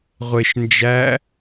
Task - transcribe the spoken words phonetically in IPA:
ʁʷ e ʃ n d͡ʒ æ

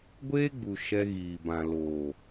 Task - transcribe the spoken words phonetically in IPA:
ɡʷ eː˦ ɡ͡b u˨ ʃ ɛ˧ ɣ iː˨ b ã˨ l oː˨

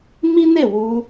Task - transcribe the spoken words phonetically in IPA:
m i˦ n e˦˨ w u˧

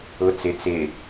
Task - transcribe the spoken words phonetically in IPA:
ʊ t͡s ɪ t͡s ɪ

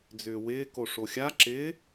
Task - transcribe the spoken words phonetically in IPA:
d͡z ʏː w ɪː k o ʂ o xʲ a ǁ ɪː

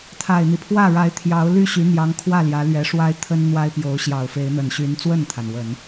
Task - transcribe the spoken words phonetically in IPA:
t̪ʰ a˨˩ ɪ̯ n̪ i˦ pʰ w ä˥˩ ɻ a˧˥ ɪ̯ t̪ʰ j ɑ˧˥ ʊ̯ l y˥˩ ɕ y˧˥ n̪ j ɑ˧˥ ŋ kʰ w ä˥˩ l j ä˧˥ l ɥ ɛ˧˥ ʂ w a˥ ɪ̯ t̪ʰ ə˥ n n̪ w a˥ ɪ̯ p j o˧˥ ʊ̯ ɕ j ɑ˨˩ ʊ̯ f e˧˥ ɪ̯ n̪ ə˨˩ n ɕ y˧˥ n t͡s w ə˥˩ n t̪ʰ a˩ n w ə˨˩˦ n

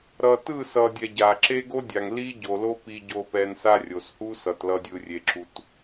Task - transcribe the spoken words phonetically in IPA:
ɾ ʌ˨ t ɯ˦˨ s ʌ˨ dʲ ɛ˨ ɟ a˨ ǁ e˦ ɡ o˦ dʲ a˨ ŋ l i˦ ɟ o˨ l o˦ p i˨ ɟ o˨ p ɛ˨ n s a˦ rʲ o˨ s h u˦ s ʌ˨ t l ʌ˨ dʲ ɯ˨ rʲ e˨ ǁ u˨ t

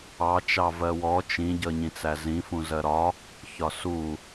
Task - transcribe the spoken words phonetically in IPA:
ɑ t͡ʃ ɑ v ɜ w ɔ t͡ʃ ĩ ɟ ʌ ɲ ĩ t͡s æ z ĩ f ũ z ɜ ɾ ɒ | ç ɒ s u

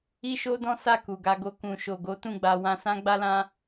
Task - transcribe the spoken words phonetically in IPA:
i˦ ʃ o˦ d ɔ̃˦ s a˦˨ k u˨ ɡ a˧ ɡ o˧ k ũ˨ ʃ o˨ ɡ o˨˦ t ũ˦˨ ɡ͡b a˧ w ã˧ s ã˦ ɡ͡b a˦ l ã˦

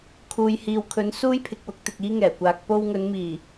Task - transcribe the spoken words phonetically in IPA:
kʰ uː˨ j h iː˨ w kʰ ɵ˨˥ n s uː˥ j pʰ ɪ˨ k̚ w ʊ˧ k̚ t̪ ɪ˨ k̚ iː˥ ŋ ɛː˨˩ kʷ aː˨ k̚ p o˧ w ŋ ɵ˨˧ n m iː˨˩

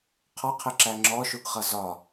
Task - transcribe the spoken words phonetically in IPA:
qʰ ɒ qʰ ɪ ǁ æ ŋ͡ǁ ɔ ʃ u ɡ χ ʌ z ɒ

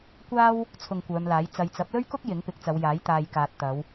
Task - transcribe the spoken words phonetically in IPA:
kʷ aː˥ w | t͡sʰ ʊ˧ ŋ kʷ œː˨˧ m l aː˨˥ j t͡s ɐ˨ j t͡s ɐ˨˥ p̚ l ɵ˥ ɥ k ʊ˥ k̚ j ɪ˨˥ ŋ p ɪ˨˥ k̚ t͡s ɐ˨˧ w j aː˨˥ j t̪ aː˨ j k aː˨ t̚ t̪ ɐ˨˧ w

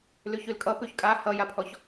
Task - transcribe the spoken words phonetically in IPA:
l ʉ ç ʉ l kʼ ʌ p ʉ ç kʼ a h ʌ j a pʰ ɔ ç

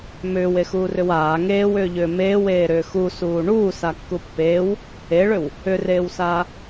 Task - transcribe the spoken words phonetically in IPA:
m ʏː w e x uː r ʏ w aː ŋ eː w ʏː ʎ ʏː m eː w eː ɾ ʏː x u s uː ɳ uː s a kː u pː eː w | e ɭ ʏ w | ʏ r eː w s aː

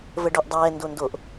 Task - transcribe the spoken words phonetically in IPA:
v ə ɖ o ʔ dˤ ɛː n d o n d o ʔ

